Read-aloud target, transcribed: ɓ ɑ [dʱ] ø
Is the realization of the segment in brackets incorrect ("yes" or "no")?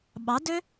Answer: yes